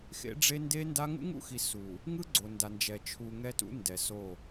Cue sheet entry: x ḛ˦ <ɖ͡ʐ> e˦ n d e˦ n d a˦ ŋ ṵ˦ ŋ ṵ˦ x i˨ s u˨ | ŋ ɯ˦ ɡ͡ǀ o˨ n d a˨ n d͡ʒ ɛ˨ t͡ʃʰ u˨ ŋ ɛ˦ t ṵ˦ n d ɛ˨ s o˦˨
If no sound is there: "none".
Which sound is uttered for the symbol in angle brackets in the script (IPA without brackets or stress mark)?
ɖ͡ʐ